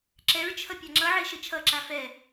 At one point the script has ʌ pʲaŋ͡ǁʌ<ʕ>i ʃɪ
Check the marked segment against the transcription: correct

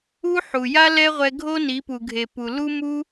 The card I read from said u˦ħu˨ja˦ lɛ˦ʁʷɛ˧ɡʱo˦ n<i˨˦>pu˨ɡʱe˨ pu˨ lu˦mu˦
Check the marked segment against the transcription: correct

